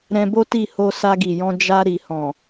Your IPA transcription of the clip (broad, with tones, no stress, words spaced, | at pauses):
ɾɛ̃˧bo˦ ti˦˨ho˧ sa˧ɡi˨jɔ̃˧ d͡ʒa˧ ɾi˨hɔ̃˨